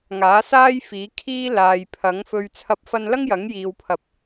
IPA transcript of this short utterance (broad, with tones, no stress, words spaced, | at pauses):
ŋaː˨˥saː˥jfiː˨˥ kʰiː˥ laː˨jpʰɐ˨˥ŋfɵ˧ɥ t͡sʰɐ˥p̚fɐ˥n lɐ˥ŋjɐ˨˥ŋjiː˨wpʰɐ˨p̚